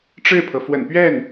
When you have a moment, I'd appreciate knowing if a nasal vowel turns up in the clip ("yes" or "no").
no